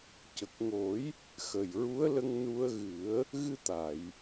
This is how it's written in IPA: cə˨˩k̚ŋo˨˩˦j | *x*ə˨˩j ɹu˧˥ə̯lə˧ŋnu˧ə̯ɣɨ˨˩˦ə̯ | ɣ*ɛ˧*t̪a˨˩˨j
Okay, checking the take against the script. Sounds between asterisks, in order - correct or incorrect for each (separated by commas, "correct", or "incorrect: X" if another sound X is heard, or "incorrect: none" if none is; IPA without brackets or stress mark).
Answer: correct, incorrect: ɨ˧